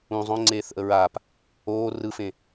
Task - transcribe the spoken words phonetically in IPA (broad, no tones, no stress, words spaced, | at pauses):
ũ zˤõŋ͡ǀeːθʔə ɹaːp | oː rɯfẽ